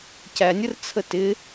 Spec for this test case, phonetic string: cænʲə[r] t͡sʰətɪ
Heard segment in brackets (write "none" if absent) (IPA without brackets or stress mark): r